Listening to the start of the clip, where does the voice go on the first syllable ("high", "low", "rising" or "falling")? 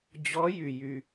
rising